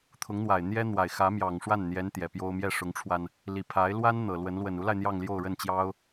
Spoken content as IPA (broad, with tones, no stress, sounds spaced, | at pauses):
t̪ʰ ʊ˧˥ ŋ n̪ w a˨˩ ɪ̯ n̪ j ɛ˥ n̪ w a˨˩ ɪ̯ x ä˧˥ m j ɑ˨˩ ŋ ʂ w a˥˩ n n̪ j ɛ˧˥ n t̪ j ɛ˨˩ p j o˥ ʊ̯ m j ɛ˥˩ ʂ ʊ˧˥ ŋ ʈ͡ʂʰ w a˧ n | l i˨˩ pʰ a˧˥ ɪ̯ l w a˥ n n̪ ɤ˨˩ l w ə˧˥ n l w ə˨˩ n u˧˥ l a˧ ɪ̯ n̪ j ɑ˥˧ ŋ l j o˥˧ ʊ̯ ɻ ə˥˩ n t͡ɕ j ɑ˥ ʊ̯